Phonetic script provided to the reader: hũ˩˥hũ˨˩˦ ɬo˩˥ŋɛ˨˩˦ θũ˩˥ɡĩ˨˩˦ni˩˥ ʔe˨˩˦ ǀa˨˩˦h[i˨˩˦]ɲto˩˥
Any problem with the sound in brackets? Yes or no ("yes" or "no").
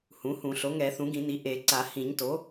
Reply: yes